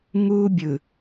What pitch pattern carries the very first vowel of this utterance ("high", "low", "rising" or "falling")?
high